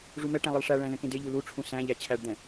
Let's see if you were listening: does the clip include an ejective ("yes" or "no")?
no